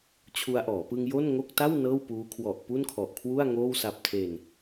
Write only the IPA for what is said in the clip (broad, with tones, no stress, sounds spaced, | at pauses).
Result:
t͡ɕʰ u˧ a̯ ʔ ɔː˩˦ p ɯ˧ ŋ j o˥˩ n ŋ o˥˩ k̚ t a˥˩ w n ɤː˥˩ w p uː˦˥ kʰ w ɔ˨˩ ʔ p u˥˩ n kʰ ɔ˨˩ ʔ kʰ w u˥˩ a̯ ŋ oː˥˩ w s a˨˩ p̚ tʰ e˨˩ n